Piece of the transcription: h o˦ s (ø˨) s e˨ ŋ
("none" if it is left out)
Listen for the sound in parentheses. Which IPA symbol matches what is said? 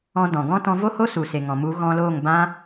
u˨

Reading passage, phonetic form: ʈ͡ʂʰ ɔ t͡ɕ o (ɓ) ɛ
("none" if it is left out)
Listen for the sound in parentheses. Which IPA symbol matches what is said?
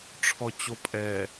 pʼ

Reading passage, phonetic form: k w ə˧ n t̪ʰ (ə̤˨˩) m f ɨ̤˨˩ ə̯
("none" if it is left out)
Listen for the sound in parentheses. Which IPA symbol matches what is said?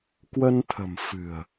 ə̤˨˩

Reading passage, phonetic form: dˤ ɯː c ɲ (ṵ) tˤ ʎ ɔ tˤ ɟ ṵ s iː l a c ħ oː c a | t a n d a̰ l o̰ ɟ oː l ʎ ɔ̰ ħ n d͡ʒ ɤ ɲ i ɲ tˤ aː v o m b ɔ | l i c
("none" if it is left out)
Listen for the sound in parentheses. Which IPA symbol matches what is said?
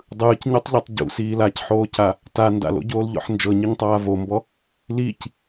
u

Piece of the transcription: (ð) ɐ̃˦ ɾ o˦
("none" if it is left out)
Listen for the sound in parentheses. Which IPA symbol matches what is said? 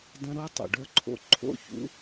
d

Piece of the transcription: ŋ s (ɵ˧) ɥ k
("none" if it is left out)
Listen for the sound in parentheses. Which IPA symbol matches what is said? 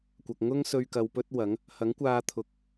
ɵ˧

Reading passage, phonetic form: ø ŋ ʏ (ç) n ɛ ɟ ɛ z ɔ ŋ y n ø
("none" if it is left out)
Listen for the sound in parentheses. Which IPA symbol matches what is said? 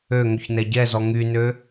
ç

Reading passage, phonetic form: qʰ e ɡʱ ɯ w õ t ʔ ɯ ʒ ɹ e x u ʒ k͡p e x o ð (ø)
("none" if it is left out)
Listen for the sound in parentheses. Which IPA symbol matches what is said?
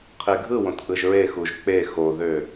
ø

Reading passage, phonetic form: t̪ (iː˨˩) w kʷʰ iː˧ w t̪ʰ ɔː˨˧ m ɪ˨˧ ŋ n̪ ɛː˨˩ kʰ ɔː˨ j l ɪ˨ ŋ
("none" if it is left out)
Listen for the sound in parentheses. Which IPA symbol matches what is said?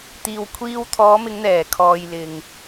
iː˨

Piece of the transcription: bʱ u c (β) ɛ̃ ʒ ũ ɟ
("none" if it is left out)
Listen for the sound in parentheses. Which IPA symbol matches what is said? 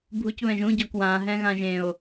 β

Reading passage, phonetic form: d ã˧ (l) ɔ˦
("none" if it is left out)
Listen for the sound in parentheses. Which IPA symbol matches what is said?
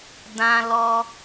l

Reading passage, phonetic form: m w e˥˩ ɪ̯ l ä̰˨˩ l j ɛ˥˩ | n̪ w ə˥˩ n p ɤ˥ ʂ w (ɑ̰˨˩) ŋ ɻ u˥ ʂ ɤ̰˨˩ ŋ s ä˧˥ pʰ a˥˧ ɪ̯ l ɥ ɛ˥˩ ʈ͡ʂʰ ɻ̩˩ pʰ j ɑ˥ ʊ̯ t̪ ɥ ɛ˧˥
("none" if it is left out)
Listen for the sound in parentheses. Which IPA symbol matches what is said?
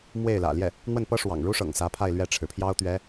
ɑ̰˨˩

